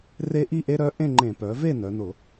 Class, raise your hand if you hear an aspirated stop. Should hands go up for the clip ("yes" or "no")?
no